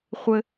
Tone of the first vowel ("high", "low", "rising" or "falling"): high